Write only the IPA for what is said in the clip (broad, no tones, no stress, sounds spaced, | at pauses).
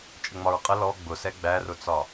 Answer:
t͡ʃʼ ə ŋ͡m ɒ ɹ qʼ ə l ɔ ɡ͡b ʊ s ɛ ɡ͡b æ r ʊ t͡s ɒ